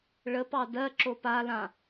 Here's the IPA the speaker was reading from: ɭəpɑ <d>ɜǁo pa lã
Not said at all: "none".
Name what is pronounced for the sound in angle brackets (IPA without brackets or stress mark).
d